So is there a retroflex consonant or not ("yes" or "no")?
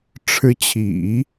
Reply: yes